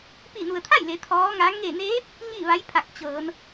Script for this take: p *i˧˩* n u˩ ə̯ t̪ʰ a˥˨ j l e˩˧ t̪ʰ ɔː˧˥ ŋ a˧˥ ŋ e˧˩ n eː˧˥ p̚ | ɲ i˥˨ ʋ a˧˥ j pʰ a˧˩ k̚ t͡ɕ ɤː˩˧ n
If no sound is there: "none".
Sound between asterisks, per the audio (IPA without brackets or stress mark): i˧˩